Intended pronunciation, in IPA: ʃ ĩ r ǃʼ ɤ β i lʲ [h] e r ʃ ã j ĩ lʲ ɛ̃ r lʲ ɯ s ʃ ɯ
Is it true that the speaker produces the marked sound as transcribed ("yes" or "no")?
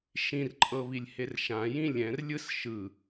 yes